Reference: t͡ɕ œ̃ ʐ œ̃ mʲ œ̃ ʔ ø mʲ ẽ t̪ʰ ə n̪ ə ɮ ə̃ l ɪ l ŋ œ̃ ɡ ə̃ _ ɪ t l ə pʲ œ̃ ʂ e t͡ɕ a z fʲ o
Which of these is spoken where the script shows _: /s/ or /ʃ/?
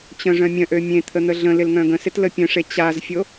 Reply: s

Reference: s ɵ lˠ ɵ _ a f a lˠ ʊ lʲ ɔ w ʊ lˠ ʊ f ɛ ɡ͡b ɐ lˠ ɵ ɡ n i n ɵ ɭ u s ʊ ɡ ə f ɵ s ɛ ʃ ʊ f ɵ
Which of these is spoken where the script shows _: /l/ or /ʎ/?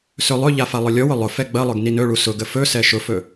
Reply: ʎ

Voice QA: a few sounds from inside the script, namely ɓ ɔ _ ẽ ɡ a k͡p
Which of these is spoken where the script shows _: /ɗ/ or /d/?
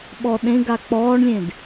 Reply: ɗ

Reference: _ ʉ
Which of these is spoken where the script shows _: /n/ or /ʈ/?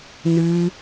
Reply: n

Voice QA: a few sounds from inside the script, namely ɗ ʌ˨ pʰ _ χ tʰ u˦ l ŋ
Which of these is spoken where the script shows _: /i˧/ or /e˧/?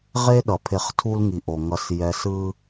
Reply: e˧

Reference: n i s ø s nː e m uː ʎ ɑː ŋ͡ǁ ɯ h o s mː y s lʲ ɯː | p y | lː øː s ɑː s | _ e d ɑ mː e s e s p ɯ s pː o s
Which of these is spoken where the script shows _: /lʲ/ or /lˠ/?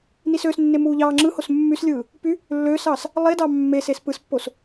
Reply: lˠ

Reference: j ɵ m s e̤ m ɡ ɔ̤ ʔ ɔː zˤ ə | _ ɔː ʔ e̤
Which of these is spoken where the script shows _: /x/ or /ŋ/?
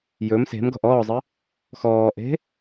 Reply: x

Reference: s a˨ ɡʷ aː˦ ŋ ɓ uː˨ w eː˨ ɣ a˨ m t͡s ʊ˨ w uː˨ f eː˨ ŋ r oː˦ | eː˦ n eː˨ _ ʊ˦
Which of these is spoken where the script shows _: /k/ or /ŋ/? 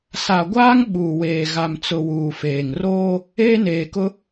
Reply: k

